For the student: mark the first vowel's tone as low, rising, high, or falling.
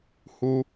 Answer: low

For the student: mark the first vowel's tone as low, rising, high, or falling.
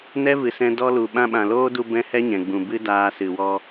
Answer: high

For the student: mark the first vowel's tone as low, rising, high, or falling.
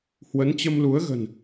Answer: rising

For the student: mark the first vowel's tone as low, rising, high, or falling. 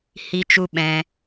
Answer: high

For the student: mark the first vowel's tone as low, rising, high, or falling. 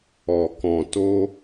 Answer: low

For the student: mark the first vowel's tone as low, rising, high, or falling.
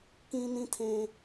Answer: high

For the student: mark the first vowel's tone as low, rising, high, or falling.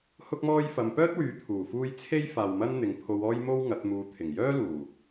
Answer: high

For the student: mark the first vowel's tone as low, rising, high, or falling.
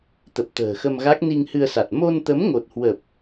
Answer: low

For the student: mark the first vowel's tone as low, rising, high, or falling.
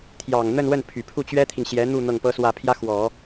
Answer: low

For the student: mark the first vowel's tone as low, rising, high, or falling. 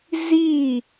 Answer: falling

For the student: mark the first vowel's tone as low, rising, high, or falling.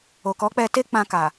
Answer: low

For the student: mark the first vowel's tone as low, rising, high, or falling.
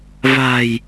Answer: low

